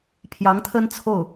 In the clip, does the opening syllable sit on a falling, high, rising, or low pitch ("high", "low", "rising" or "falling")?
rising